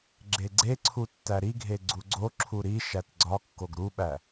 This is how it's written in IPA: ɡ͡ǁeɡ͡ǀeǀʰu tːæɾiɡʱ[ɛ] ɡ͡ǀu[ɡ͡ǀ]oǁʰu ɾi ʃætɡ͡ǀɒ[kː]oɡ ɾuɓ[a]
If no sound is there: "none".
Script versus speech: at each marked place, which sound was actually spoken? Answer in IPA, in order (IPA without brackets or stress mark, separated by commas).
e, ɡ͡ǀ, kː, æ